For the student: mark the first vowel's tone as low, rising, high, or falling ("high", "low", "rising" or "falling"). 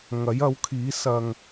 rising